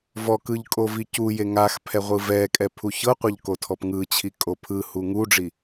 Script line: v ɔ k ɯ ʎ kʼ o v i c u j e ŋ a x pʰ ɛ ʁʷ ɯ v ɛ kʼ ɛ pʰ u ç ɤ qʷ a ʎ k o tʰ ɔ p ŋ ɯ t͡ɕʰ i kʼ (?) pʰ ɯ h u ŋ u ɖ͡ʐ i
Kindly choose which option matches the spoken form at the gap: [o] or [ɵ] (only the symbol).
o